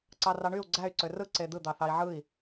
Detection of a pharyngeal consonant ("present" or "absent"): present